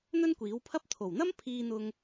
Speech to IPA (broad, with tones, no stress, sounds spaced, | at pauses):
n̪ ɵ˥ n kʷ iː˨˥ w pʰ ɐ˥ p̚ t̪ʰ o˨˩ w n̪ ɐ˥ m pʰ iː˥ n̪ ʊ˥ ŋ